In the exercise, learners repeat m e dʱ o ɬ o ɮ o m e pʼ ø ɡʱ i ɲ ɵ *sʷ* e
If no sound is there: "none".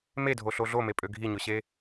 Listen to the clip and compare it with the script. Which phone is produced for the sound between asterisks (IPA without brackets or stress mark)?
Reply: ɕ